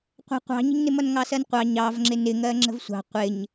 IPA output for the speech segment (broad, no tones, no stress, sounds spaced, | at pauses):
qʷ ə̤ qʷ ɑ̤ ɲ ə̤ ɲ n ɪ m ʌ n ŋ ɑ s ɜ n qʷ ɑ ɲ ɑ v ŋ͡ǁ ɪ n ɪ ŋ ɜ ŋ͡ǁ ə̤ v sʷ ɑ̤ qʷ ɪ ɲ